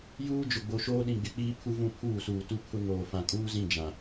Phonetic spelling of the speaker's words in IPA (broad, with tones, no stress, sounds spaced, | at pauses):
j uː˦ d͡ʒ ʊ˨ ɡ͡b o˨ ʃ oː˦ ɗ ĩ˨ ɡ͡b ɪ˨ k͡p iː˦ pʰ u˦ v ũ˦˨ pʰ uː˦˨ s uː˨ t u˦ pʰ ʊ˦ ŋ oː˨ f ã˨ kʼ uː˦ z ĩ˦˨ d͡ʒ ã˨